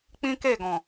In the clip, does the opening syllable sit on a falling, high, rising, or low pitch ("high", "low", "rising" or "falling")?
high